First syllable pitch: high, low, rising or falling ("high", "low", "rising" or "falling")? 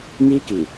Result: high